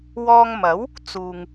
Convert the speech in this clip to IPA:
wɔː˧ŋmɐ˨˥w | t͡suː˨ŋ

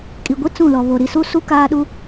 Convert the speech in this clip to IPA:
kʼi˨ɡʷi˦ t͡sũ˦˨lɔ˨ βo˨ ɾi˨su˦su˦ kaː˦ɗu˦

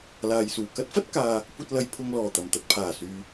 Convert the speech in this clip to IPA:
laː˨jsuː˨˩ kɐ˥t̚fɐ˥t̚ kaː˨ | kʷɐ˧t̚lɐ˨j pʰʊ˧ŋlɔː˨˩t̪ɐ˨˩m t̪ɐ˨t̚pʰaː˨˩syː˨

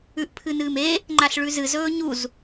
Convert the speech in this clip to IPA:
ʉʔpʰɨnɨːme | ŋ͡ǃaɬɭʉzɨ zɵːɲuz

